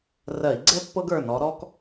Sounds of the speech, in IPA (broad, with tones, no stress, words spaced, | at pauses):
rɜ˧˩˧i̯ɡ͡ǀɛ˥ pːɤ˥ɡ ə˞˩˧˩nɔ˨˦ɾɔ˥k